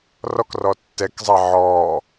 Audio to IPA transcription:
r ɔ k r ɔ tː ɛ k zˤ a ʕ ɔː

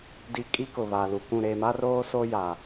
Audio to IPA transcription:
d i˨ kʼ i˦ k ʊ˨ β a˨ l u˨ k ũ˦˨ ɾ e˨ m a˦ r oː˦ s o˦ j a˨

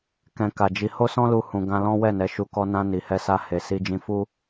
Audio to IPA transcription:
k ɛ̃˧ k a˨ d͡ʒ i˧ h o˦ s ɔ̃˦ l u˧ h ũ˨ ɡ ã˧ l ɔ̃˦ w ɛ˦˨ n ɛ˨˦ ʃ u˧ k ɔ˧ n ã˧ n i˨ h ɛ˧ s a˧ h e˨ s i˧ d͡ʒ ĩ˧ f u˦

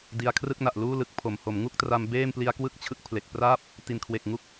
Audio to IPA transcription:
d i˧ a̯ kʰ r ɯ˥˩ k̚ n a˨˩ ʔ l uː˥˩ l ɯ˦˥ k̚ pʰ o˩˦ m h o˩˦ m ŋ u˥˩ k̚ t r a˧ m b eː˥˩ m p l i˦˥ a̯ k w ɯ˥˩ k̚ t͡ɕʰ ɯ˦˥ k̚ pʰ l e˨˩ k̚ p r aː˥˩ p̚ | t i˨˩ n kʰ w e˨˩ k̚ ŋ u˦˥ k̚

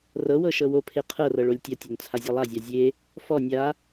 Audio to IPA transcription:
r ɤ w ɤ ʃ ɤ w o pʰ e qʰ ɤ r ɤ ɭ o lʲ tʲ ɐ tʲ o n t͡sʰ a zʲ ɔ lˠ a zʲ a zʲ e | f ɔ nʲ a

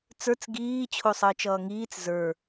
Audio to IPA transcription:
t͡s ə˞ t͡s ɡ iː t͡ɕʰ o sˤ əː t͡ʃ ʌː ŋ iː t͡s z ə˞

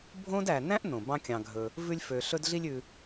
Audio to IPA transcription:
bʱ õ˥ d æ˨ n æ̃˥ ʔ n õ˩ b ɑ̃˦ kʲ ɑ̃˨ ɡʱ ɵ˨ | v ʉ˦ lʲ f ø˨ ɬ ɵ˦ d ɮ i˦ lʲ ʉ˨

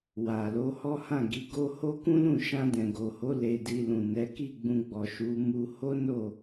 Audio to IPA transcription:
w a˨ l o˨˦ h ɔ˦ h ã˦˨ ɡ i˨˦ ɡ o˦ h o˦ k ũ˦ l ũ˦˨ ʃ ã˧ d ɛ̃˨ ɡ o˨ h o˨˦ l e˧ d i˧ l ũ˨ n ɛ˨˦ k i˦˨ ɡ͡b ũ˧ ɡ͡b ɔ˨ ʃ u˨˦ m u˧ h o˦ n o˦˨

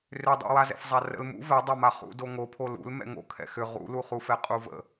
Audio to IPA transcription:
r ʏ dˤ ṵ w a z ɛ̰ f zˤ a r ə̰ l m ṵ v ɛ dˤ a m a χ ṵ d o ŋ o pʰ o l ṵ l m ɛ̰ ŋ o̰ kʰ ɛ̰ x ʏ ʁ ṵ l u χ u f ɛ qʼ u v ə̰

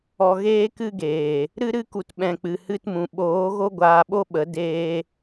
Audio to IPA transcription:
ɔ˨ ɣ eː˧ k ɨ˧ ɡ eː˨ | ɾ ɨ˧ ɾ ɨ˧ k u˨ t ɓ ɛ̃˨ k͡p ɨ˨ h ɨ˧ t m ũ˨ ɓ oː˨˦ ɣ o˦ ɡʷ aː˧ ɓ o˦ ɓ ə˨˦ d eː˧

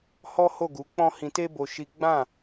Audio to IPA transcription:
h ɔ˦ h o˦˨ ɡ u˨˦ k͡p ɔ̃˦ h ĩ˧ t e˦ b o˧ ʃ i˦ ɡ͡b ã˦˨

